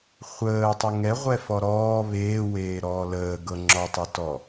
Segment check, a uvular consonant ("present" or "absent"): present